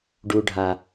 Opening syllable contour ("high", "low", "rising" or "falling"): high